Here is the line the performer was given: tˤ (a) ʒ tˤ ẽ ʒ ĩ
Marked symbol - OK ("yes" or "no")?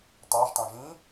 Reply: yes